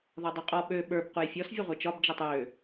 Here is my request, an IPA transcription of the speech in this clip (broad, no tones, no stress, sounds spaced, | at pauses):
ð ɒ dˤ ø qʼ ɔ ɓ ø ɓ ə˞ b q u j fʲ ɔ s vʲ ʌ ʁʷ e t͡ʃ ɒ b d͡ʒ e tˤ j ø